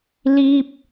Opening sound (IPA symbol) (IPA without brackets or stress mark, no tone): l